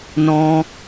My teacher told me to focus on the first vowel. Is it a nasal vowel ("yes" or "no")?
yes